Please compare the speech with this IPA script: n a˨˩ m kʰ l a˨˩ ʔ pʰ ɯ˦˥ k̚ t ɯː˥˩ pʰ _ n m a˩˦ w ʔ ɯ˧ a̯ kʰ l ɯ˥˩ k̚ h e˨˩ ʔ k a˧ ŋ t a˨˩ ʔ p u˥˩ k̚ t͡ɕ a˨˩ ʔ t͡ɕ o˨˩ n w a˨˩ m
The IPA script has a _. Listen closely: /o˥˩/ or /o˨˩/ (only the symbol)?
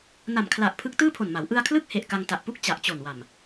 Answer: o˨˩